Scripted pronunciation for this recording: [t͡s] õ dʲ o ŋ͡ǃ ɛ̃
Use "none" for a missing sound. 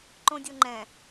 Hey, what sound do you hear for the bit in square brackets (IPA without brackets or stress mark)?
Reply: ǃ